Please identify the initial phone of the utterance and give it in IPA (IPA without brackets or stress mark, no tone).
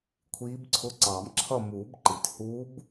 kʷʰ